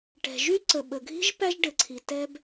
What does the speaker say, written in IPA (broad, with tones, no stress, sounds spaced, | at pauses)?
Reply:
ʈ ɛ̤˩ ʒ y˥ ǀ ə˩ ɓ ə˩ ɡʱ i̤˥ ʒ p æ˥ ʒ ɖ ɘ˩ ǀʰ i˩ t ɛ˥ b